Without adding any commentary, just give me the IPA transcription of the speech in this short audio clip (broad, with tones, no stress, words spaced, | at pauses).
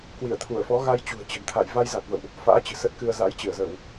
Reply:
kwi˧˩ə̯t̪ʰu˧˩ə̯fɔ˨˦ɣa˧j t͡ɕṳ˨˩ə̯t͡ɕə̤˨˩nt̪ʰa̰˧˨j va˧jza˨˩t̚və̰˧˨wʔ | fa̰ː˧˥ t͡ɕɨ̤˨˩sə˦˥t̚kɨ˧ə̯ za̰˧˥jt͡ɕɨ˧˩ə̯zə˧˩˨w